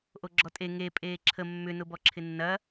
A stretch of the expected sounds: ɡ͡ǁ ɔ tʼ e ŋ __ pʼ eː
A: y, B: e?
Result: B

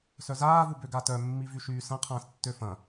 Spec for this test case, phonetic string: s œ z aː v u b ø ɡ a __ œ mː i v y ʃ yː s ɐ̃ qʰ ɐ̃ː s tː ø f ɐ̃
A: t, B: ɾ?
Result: A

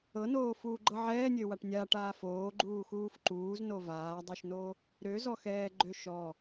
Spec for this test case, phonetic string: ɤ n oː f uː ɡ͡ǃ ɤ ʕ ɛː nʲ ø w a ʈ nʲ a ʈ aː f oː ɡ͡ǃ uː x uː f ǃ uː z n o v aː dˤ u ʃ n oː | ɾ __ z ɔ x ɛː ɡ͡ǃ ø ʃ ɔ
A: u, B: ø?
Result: B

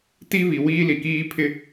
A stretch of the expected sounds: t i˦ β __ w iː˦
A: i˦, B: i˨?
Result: B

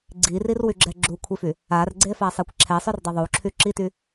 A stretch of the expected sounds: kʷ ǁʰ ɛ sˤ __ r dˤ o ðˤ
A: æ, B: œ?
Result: B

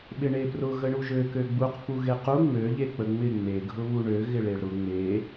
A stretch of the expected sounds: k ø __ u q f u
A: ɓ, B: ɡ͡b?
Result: B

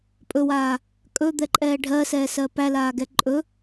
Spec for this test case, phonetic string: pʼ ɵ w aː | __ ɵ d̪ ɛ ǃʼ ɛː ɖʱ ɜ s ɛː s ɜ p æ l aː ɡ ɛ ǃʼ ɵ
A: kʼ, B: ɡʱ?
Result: A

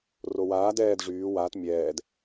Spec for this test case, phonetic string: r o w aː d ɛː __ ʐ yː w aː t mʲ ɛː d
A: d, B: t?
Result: A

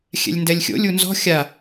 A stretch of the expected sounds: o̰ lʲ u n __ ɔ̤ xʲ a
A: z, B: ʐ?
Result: A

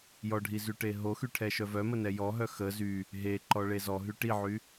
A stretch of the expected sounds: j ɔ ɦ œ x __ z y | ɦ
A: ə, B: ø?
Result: A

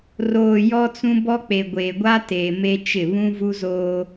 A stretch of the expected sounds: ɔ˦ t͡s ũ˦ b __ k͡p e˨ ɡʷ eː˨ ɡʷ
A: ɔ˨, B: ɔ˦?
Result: B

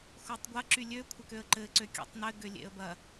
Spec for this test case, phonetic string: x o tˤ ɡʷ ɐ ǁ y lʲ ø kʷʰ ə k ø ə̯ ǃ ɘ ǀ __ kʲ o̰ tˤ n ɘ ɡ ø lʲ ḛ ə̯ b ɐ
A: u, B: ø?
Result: B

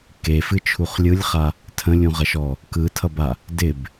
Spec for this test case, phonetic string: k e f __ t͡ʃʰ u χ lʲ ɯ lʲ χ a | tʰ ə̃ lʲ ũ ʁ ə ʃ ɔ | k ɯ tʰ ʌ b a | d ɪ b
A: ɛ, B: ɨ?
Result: B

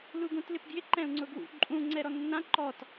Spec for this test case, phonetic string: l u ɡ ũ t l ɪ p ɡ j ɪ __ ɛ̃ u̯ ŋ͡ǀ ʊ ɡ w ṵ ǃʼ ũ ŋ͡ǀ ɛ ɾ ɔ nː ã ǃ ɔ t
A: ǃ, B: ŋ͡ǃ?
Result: A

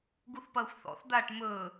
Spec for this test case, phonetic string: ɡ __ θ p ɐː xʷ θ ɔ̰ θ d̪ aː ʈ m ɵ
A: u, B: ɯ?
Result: A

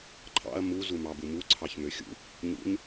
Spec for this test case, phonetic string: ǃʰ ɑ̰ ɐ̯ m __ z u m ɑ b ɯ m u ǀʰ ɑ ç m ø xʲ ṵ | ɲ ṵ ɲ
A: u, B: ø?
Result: A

